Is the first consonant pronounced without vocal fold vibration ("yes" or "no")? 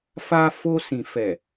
yes